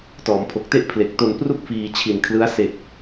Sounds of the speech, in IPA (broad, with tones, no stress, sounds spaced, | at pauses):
t ɔː˩˦ m pʰ o˨˩ k̚ t e˥˩ ʔ pʰ l e˨˩ k̚ t o˧ n p r u˥˩ k̚ f iː˧ t͡ɕʰ i˨˩ n kʰ l ɯ˦˥ a̯ s e˨˩ k̚